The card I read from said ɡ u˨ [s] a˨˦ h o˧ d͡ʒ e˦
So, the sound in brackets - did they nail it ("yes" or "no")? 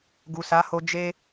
yes